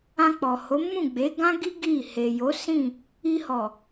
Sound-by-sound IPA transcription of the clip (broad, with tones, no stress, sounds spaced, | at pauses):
ã˧ k͡p ɔ˨ h o˨˦ m ũ˦˨ ɡ͡b e˨˦ ɡ ã˦ ɡ i˦ ɡ i˦˨ h e˨ j o˨˦ s ĩ˦˨ | i˧ h ɔ˨